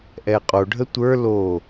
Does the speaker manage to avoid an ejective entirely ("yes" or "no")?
no